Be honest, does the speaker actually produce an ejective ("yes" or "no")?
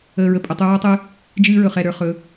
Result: yes